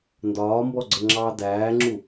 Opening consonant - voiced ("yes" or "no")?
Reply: yes